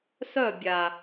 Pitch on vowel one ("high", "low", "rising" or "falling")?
falling